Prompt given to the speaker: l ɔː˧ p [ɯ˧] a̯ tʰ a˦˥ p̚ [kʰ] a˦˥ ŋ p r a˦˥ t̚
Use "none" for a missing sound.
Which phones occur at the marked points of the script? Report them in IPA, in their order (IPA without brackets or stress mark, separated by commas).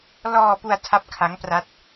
u˧, kʰ